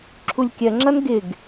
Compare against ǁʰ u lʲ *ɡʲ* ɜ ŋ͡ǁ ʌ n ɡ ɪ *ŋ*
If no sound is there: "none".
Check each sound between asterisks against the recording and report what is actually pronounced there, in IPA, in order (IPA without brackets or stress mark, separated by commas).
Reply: kʲ, ɡ